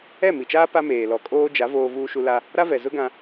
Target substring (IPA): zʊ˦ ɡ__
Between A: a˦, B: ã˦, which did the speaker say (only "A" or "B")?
B